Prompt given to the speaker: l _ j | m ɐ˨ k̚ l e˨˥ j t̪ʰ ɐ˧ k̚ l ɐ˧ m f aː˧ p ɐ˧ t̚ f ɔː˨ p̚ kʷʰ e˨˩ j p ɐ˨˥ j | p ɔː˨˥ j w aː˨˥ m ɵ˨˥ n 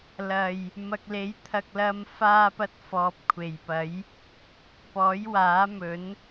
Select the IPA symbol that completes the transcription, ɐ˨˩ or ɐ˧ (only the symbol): ɐ˨˩